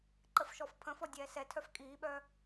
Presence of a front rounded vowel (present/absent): present